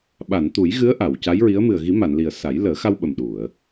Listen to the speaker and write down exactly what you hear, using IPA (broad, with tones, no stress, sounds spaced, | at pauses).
ɓ a˨˩˨ n t̪ u˨˩˦ j ɣ ɨ˧˥ ə̯ ʔ a˨˩˨ w c a˧˥ j ɹ i˧˥ ə̯ m ɨ˨˩ ə̯ ɣ i˨˩˦ m a˨˩˨ n l i˨˩ ə̯ s a˨˩˦ j l əː˨˩˦ x a˧ w ɓ ə˨˩ m ɗ u˨˩˨ ə̯